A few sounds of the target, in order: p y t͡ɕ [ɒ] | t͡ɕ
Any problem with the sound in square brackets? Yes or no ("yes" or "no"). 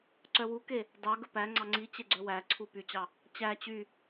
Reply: yes